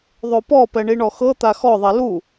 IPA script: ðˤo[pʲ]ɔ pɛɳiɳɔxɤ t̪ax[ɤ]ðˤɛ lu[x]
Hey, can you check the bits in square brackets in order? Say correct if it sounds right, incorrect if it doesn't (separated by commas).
incorrect, incorrect, incorrect